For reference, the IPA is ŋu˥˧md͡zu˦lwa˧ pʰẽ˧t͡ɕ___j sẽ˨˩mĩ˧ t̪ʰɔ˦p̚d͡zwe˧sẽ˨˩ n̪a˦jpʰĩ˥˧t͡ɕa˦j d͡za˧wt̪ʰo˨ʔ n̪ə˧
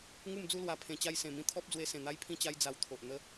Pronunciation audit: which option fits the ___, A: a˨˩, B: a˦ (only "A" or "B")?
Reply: B